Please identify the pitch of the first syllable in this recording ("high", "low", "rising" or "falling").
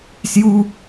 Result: high